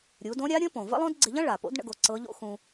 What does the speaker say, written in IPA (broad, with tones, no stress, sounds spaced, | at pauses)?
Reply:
ɾʲ u˩˧ d õ˧˥ ɾʲ a˧˥ ɾʲ ə̃˧˥ p õ˩ v ə̰˥ lˠ õ˥ d ɡ͡ǀ ɪ˧ ʎ ɐ̃˥ ɭ a˩ p o̰˧˥ d ɳ ə̰˥ ɡ o˧˥ ǀ ɤ˧˥ ʎ o̰˥ x ũ˧